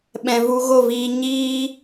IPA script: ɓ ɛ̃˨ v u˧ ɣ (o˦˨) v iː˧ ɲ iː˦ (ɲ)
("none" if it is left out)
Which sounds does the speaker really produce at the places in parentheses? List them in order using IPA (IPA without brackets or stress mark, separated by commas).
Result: o˦˨, none